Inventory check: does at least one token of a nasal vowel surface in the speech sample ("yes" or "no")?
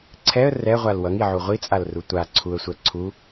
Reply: no